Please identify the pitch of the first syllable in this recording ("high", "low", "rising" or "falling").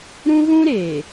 high